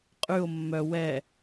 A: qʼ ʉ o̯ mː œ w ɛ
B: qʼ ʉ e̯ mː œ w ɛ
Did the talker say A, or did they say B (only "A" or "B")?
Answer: A